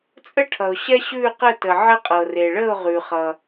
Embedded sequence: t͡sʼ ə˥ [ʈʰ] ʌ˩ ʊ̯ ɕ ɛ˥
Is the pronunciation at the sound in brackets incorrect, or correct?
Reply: correct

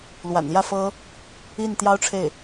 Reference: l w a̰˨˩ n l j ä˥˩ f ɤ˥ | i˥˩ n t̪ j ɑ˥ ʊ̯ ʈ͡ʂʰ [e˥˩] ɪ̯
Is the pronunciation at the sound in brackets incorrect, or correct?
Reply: correct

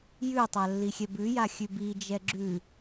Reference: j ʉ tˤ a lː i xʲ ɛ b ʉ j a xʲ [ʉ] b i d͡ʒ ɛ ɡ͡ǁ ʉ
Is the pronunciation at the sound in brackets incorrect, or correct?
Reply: correct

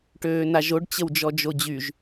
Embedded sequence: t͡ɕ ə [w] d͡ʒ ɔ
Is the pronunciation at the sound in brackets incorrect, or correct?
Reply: correct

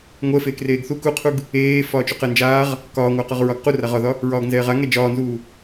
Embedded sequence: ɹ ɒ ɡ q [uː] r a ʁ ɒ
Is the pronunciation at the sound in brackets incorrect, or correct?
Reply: incorrect: u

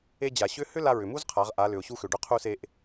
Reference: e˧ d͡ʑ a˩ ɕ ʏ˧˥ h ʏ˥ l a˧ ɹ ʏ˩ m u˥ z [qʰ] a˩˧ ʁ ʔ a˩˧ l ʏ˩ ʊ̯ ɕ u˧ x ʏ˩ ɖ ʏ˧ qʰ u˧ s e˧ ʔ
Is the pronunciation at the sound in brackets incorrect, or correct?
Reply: correct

